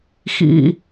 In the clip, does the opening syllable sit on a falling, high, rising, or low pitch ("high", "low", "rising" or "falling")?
low